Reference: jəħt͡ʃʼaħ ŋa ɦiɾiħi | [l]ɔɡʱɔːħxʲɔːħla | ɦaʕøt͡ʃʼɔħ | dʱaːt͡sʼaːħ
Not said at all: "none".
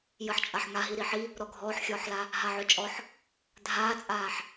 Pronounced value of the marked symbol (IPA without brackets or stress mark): ɾ